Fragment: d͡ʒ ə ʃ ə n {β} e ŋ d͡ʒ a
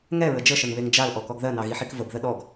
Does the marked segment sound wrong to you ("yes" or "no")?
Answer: no